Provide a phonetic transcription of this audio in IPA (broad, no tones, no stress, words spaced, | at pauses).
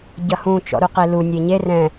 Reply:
ɟɐhũ t͡ʃɔ̰ɾuqelu nʲeɲe rɛ̃